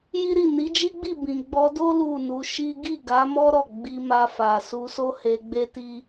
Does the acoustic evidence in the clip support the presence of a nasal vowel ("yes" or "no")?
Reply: yes